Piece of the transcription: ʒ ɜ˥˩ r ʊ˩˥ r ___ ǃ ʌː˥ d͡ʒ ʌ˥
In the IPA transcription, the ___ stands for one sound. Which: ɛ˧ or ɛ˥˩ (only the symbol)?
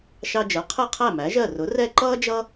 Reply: ɛ˥˩